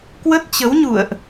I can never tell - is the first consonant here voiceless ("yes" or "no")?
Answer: yes